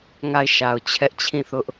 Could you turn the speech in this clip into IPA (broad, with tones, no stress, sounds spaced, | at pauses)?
ŋ a˦˨ ɪ̯ ʃ a˨ ʊ̯ t͡ɕʰ ɛ˦ ʔ t͡ɕʰ ĩ˦˨ θ ʊ˦ ʔ